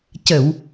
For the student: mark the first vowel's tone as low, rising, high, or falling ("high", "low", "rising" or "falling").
low